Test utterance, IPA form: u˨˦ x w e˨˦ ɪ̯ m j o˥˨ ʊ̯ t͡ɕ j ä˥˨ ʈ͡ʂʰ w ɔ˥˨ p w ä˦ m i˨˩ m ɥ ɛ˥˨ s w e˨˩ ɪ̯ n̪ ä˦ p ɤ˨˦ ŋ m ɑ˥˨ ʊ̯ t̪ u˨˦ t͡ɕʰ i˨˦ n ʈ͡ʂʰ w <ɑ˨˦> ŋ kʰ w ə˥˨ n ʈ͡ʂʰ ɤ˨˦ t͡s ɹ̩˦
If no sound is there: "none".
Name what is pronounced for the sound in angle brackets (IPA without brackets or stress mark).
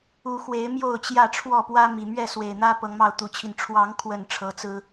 ɑ˨˦